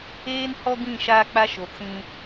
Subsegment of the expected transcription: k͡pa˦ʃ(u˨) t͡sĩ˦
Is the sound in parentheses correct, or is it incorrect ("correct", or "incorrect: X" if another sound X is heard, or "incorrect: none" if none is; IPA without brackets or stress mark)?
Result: incorrect: o˨